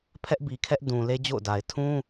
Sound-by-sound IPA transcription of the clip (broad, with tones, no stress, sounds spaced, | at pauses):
pʰ ɛ˦ ʔ b i˨ kʰ ɛ˦ ʔ d ũ˨ l e˦ d͡ʑ o̰˦˨ ʊ̯ d a˨ ɪ̯ tʰ ũ˦